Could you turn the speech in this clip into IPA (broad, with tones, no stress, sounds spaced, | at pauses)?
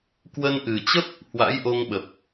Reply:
k w ə˧ n ʔ ɨ˨˩ t͡ɕ ə˦˥ p̚ | h w a̰˧˥ j ʔ o˧ ŋ ɓ ə˨˩ p̚